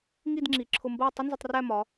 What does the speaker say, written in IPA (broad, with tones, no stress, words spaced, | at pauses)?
ŋi˥˧dŋ͡ǁi˩˧ǁʰʊ˧mbɜ˥˧ tˤɪ˥nzə˧tˤ ræ˥˧mɒ˩˧